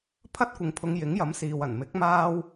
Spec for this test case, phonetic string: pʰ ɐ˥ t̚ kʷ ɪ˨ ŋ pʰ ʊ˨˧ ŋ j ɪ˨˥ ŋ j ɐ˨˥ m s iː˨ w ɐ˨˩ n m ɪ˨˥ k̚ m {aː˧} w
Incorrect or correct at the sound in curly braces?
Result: correct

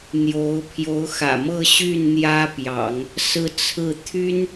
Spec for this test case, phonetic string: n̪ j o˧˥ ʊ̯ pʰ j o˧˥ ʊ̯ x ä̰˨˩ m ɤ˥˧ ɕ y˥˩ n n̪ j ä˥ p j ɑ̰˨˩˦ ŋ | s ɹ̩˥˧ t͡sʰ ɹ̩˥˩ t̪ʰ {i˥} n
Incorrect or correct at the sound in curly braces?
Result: incorrect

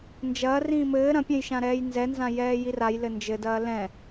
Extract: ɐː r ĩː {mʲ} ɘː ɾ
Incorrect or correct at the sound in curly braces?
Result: incorrect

